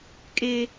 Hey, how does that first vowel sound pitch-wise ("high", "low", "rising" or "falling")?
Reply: high